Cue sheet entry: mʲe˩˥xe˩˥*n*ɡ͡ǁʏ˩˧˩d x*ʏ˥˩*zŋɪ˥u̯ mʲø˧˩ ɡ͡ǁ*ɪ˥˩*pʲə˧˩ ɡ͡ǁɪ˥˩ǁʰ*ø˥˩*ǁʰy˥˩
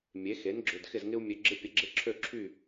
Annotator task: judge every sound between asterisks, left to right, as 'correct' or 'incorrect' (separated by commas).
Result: correct, incorrect, incorrect, correct